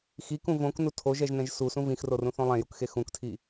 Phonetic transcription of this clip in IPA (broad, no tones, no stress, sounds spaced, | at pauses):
x i k ũ v õ k n u tʰ o ʒ ɛ ʒ n ɛ̃ ʒ s u s ũ v ĩ x r o r ũ θ õ lˠ ɛ̃ j u k x e x ũ k tʰ i